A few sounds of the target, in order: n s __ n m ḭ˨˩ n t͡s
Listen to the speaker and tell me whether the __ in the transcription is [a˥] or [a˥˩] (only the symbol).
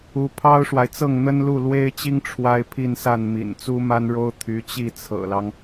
a˥˩